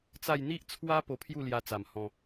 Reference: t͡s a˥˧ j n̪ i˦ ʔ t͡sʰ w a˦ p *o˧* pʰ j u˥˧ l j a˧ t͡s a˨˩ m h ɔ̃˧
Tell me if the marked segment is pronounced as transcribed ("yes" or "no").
yes